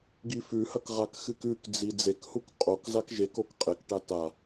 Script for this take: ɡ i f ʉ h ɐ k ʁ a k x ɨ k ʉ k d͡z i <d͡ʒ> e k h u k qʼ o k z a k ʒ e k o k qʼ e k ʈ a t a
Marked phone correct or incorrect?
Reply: incorrect